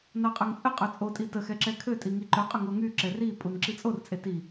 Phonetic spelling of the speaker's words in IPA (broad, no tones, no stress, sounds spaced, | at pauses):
n a qʼ œ ŋ t͡sʼ ə qʼ œ t͡sʼ o tʼ i t ə x ɛ ǁ ɛ kʰ ø tʼ i ŋ i ǃ œ qʼ œ ŋ o ŋ y ǁ ɛ r i pʼ u n ǁ i t͡sʼ o r t͡sʼ e t i